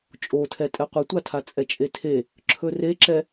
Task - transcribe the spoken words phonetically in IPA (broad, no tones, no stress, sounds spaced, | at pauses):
t͡ʃʼ o tʰ ɛ tʼ ɛ qʷ e tʷ a tʰ a t͡sʼ ɛ t͡ʃʼ e tʰ e | ǁʰ ɵ r e ǁ ɛ